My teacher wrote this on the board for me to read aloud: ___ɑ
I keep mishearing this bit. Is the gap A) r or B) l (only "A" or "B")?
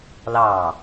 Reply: B